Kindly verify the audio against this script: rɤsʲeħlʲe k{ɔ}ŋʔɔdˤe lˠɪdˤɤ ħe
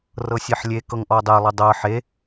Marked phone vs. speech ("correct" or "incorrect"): incorrect